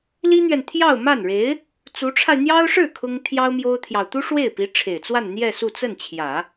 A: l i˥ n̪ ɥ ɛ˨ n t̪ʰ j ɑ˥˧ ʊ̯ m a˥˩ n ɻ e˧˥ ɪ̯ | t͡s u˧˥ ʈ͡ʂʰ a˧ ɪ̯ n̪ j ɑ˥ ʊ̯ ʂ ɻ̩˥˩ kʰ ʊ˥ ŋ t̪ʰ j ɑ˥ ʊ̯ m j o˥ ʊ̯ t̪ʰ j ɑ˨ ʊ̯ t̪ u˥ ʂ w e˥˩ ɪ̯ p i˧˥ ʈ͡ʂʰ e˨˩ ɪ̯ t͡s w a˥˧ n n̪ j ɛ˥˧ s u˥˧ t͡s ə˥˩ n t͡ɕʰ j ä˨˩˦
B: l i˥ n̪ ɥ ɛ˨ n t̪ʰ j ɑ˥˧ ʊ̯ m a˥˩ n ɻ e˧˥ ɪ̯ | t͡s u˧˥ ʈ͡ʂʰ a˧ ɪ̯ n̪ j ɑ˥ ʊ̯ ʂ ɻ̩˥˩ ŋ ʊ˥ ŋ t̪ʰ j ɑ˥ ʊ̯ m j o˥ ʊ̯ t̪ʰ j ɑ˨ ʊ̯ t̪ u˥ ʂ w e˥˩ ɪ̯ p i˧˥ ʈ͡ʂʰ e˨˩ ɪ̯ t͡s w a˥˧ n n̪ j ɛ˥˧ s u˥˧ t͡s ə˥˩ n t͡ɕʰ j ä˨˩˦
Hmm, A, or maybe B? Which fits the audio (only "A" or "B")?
A